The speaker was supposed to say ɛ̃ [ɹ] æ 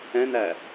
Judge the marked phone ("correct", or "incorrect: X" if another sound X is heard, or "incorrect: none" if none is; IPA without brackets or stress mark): incorrect: n